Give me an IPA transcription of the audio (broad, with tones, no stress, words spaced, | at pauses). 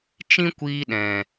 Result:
t͡ʃĩ˦kʷiː˧ ɗɛ̃˨